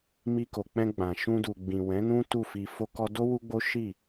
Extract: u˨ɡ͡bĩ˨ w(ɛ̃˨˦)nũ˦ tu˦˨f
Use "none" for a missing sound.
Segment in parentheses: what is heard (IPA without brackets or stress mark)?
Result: ɛ̃˨˦